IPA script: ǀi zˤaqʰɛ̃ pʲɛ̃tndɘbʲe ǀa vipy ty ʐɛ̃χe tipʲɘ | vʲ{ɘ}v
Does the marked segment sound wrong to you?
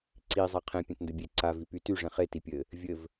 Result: no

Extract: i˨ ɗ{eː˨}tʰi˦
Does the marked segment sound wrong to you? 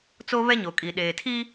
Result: no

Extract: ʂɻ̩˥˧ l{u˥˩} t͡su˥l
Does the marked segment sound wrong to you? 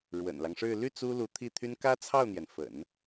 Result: yes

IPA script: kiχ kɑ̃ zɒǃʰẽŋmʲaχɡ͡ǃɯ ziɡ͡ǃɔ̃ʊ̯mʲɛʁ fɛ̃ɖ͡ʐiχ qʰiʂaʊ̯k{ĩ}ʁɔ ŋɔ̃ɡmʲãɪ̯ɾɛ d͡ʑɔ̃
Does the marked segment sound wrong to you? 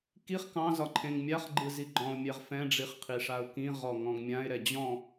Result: no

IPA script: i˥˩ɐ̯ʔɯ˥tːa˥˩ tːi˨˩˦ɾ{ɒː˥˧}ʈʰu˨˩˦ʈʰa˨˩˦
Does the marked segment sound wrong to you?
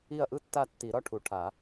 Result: yes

